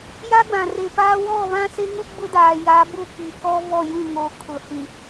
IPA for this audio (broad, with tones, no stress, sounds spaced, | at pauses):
j a˦ ɡ͡b ã˨ r e˨ p aː˦ w ɔ˦˨ β ã˦ s e˦ ŋ u˦ ɡ͡b ʊ˦ d aː˨ j a˨˦ b ʊ˦ k i˨ k ɔ˦ v ɔ˦˨ j ũ˦˨ ŋ o˨ kʰ ʊ˨ h ĩ˨